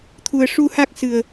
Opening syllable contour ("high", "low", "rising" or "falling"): low